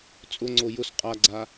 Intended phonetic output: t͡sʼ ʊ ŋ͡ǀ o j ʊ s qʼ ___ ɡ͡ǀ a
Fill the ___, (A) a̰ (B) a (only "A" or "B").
B